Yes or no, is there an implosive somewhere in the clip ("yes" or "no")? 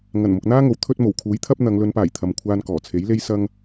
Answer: no